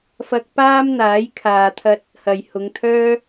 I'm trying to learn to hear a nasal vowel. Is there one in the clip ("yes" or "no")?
no